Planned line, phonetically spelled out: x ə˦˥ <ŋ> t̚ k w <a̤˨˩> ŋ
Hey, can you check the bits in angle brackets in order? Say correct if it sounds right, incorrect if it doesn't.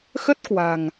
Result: incorrect: none, correct

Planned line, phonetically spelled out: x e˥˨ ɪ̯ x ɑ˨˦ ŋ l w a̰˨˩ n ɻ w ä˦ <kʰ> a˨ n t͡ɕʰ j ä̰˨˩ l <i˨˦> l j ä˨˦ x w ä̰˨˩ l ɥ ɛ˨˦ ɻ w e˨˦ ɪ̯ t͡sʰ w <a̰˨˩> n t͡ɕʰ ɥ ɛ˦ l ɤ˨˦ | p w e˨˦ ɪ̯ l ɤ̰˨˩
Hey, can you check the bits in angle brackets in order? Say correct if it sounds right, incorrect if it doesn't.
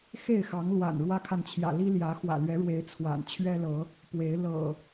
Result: correct, incorrect: i˦, correct

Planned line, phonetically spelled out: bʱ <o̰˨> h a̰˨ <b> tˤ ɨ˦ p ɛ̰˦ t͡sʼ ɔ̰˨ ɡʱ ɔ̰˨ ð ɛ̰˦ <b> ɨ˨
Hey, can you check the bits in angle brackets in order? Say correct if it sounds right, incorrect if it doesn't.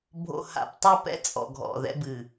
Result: correct, incorrect: p, correct

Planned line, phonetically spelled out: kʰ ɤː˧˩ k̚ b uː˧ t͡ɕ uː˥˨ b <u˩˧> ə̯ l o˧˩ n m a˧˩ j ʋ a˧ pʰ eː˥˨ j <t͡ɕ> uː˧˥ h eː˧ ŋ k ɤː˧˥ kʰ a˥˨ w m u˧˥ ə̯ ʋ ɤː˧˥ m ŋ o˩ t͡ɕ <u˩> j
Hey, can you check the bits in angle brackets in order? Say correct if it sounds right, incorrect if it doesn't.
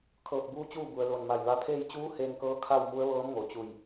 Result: incorrect: u˩, correct, incorrect: u˧˩

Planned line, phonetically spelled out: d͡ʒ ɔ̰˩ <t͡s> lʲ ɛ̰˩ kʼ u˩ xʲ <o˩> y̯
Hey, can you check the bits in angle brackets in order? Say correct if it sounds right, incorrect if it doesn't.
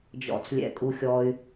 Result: correct, incorrect: ɔ˩

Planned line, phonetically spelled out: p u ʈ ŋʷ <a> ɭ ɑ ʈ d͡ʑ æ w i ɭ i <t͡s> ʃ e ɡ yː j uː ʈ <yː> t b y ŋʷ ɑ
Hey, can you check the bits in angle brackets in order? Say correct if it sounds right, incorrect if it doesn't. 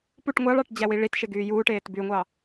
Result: incorrect: ɑ, incorrect: t, incorrect: eː

